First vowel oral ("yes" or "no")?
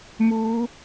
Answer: yes